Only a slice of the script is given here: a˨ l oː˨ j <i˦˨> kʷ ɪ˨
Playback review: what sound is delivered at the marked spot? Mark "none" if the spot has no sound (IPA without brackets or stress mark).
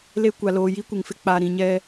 i˦